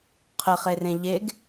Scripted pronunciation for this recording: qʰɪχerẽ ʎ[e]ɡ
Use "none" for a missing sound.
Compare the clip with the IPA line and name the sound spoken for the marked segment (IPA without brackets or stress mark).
e